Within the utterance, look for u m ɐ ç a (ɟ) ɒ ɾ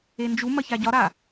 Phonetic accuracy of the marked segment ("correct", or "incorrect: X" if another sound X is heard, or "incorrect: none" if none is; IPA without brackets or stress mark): correct